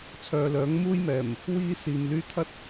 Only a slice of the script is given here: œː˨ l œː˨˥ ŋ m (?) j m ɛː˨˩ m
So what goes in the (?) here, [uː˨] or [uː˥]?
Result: uː˥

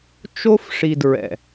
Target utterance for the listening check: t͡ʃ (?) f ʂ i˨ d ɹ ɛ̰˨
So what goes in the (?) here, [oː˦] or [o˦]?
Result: o˦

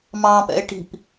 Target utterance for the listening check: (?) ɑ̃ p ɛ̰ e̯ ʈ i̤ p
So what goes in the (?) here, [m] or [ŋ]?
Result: m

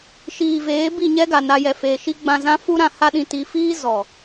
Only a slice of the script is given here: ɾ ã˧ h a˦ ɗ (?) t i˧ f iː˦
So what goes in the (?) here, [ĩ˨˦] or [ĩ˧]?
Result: ĩ˧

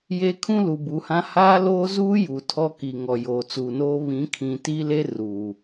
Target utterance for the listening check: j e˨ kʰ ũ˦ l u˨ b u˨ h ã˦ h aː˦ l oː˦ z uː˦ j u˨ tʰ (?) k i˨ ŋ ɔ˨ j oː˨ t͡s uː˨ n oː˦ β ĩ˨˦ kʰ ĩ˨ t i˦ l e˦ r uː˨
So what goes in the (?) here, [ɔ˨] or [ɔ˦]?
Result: ɔ˦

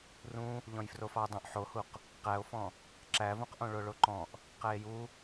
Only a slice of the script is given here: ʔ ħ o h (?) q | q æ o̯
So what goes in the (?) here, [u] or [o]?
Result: u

